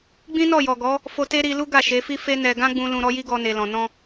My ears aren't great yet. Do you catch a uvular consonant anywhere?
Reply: no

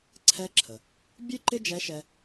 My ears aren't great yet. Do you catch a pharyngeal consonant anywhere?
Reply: no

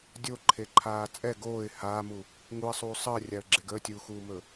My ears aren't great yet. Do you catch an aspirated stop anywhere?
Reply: yes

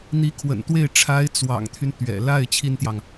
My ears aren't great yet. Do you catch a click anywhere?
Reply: no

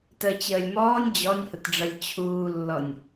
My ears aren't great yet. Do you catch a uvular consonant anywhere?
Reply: no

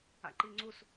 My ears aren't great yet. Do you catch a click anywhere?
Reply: yes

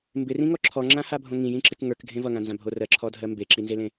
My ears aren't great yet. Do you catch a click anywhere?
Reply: yes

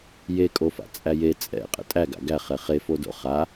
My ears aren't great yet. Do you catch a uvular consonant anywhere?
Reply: yes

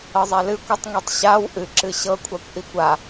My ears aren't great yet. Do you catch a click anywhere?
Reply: yes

